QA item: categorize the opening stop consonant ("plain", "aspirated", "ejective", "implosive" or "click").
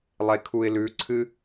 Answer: aspirated